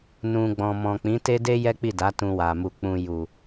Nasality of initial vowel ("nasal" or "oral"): nasal